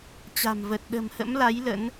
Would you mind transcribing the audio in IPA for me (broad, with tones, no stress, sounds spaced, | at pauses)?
t͡ɕ a̤˨˩ m v ə˨˩ t̚ ɗ ə̤˨˩ m h ə̰˧˥ m l a˨˦ j l ə̰˧˥ n